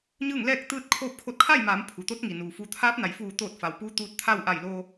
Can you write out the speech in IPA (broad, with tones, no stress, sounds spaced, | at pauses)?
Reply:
ɲ ɯː˥˨ ŋ l ɛː˥˨ k̚ t̪ ɯː˥˨ t̚ kʰ oː˥˨ p̚ kʰ o˧ t̚ kʰ a˥˨ j m aː˩˧ m pʰ u˩ t̪ o˧˥ t̚ ŋ i˩ n uː˩ f u˩˧ t̪ʰ aː˧˥ p̚ n a˩ j f uː˧˩ t̪ oː˧˩ t̚ f a˩ w p uː˧˥ t̪ uː˧ t̚ t̪ʰ a˥˨ w ʔ a˧˩ j l oː˧